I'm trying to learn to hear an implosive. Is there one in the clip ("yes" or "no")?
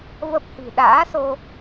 yes